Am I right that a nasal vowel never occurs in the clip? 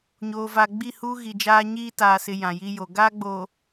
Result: no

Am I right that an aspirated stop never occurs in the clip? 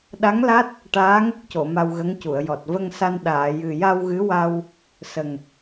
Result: yes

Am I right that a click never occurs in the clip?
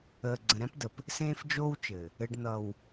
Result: no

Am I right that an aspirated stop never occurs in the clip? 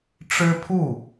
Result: no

